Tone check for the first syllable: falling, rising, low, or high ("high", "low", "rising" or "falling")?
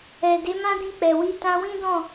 low